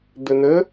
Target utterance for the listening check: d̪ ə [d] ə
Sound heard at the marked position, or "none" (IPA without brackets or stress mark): n̪